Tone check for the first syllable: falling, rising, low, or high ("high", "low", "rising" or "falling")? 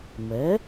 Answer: rising